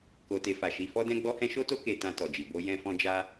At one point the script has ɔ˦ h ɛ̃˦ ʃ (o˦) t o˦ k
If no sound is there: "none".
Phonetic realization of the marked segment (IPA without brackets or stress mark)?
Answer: o˦